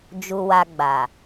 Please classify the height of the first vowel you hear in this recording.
high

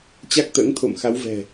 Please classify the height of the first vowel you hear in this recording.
low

